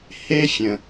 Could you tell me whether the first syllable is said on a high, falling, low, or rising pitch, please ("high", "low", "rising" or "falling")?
high